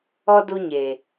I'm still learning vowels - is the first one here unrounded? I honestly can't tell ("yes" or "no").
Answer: no